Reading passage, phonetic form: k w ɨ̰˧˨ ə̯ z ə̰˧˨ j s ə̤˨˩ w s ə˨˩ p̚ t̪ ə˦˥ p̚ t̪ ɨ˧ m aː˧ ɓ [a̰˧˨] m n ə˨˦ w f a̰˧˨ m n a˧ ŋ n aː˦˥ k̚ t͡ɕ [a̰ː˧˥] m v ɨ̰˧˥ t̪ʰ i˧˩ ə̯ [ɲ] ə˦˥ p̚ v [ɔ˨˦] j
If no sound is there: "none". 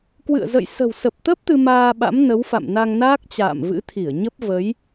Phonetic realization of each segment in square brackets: a̰˧˥, a̰ː˧˨, ɲ, ə˨˦

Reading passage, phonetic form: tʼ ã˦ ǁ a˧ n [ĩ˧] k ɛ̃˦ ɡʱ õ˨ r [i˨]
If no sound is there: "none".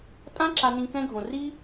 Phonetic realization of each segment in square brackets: ĩ˧, i˦

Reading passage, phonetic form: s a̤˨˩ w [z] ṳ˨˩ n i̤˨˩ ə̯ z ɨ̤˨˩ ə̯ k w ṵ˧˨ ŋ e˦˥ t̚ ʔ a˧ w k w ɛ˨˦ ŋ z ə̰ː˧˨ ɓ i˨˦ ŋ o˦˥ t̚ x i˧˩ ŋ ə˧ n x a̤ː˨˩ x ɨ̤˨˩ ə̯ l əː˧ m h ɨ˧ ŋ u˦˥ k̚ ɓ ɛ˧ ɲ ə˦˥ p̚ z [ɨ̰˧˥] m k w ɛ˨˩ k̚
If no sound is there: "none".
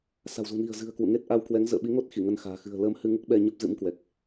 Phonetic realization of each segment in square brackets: z, ɨ̰˧˥

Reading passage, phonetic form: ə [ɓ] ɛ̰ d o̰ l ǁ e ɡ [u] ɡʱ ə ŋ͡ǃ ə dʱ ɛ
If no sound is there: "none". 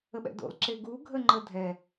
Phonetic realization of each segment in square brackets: ɓ, u

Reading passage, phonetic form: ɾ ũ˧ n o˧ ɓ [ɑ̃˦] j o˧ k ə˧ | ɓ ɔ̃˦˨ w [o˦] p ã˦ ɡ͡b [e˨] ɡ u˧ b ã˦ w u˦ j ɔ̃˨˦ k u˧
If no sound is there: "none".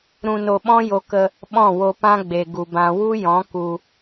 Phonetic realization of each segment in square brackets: ɔ̃˦, o˧, e˨

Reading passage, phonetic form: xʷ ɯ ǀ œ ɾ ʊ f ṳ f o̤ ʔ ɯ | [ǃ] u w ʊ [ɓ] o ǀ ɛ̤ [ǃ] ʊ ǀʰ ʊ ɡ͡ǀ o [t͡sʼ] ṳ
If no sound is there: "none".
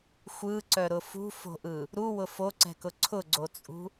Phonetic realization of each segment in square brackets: ɾ, f, k, t͡sʼ

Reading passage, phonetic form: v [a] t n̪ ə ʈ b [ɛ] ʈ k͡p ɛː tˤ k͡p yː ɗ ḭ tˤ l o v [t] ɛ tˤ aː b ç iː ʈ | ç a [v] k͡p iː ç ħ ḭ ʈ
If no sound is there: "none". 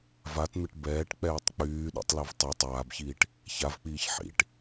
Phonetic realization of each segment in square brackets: a, ɛː, tˤ, v

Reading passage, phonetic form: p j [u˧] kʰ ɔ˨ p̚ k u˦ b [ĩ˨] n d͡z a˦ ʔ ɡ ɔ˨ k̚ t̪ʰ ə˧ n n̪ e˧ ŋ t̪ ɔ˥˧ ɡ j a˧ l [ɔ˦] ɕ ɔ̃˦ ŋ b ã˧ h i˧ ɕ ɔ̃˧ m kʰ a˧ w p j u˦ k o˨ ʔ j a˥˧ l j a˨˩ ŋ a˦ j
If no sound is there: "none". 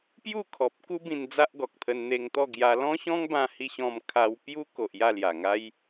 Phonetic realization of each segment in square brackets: u˥˧, ĩ˧, ɔ̃˦

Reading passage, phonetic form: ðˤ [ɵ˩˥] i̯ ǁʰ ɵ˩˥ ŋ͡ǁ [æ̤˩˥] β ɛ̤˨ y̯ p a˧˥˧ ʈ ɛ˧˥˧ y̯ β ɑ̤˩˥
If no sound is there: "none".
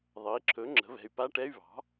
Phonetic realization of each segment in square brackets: ɤ˩˥, ə̤˩˥

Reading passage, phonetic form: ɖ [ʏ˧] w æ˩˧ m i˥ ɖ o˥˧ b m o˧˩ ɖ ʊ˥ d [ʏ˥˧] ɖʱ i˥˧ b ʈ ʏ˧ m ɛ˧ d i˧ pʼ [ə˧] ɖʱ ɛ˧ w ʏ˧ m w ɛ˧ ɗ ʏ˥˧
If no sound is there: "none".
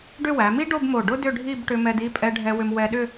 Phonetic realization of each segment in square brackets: ʏ˥˧, ʏ˥˧, ɛ˧

